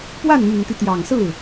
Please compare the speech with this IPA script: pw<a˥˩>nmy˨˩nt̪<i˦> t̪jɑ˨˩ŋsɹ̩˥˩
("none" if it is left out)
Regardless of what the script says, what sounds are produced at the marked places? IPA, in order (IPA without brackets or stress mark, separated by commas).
a˥˩, i˦